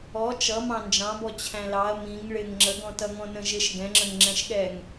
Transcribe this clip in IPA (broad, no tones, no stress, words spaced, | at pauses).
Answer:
ɔ t͡ʃʌ mɑ̃nd͡ʒɑ̃bɔ t͡ɕʰæ̃lɑɐ̯ mĩŋ ɭɪŋ ŋ͡ǁəɡɔ̃tʌŋɔ̃ nə̃ʒɪʃ ɡɛ̃ŋ͡ǁə̃ŋ ŋ͡ǁɛ̃ʃɠɛŋ